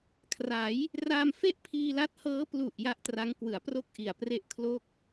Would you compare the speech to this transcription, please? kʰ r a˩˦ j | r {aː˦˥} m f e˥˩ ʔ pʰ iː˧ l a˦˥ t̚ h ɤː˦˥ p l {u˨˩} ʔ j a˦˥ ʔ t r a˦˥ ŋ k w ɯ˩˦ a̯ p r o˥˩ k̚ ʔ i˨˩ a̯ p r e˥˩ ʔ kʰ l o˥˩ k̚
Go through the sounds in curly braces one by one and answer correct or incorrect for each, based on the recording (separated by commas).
incorrect, correct